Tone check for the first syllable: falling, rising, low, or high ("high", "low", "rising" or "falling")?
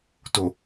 low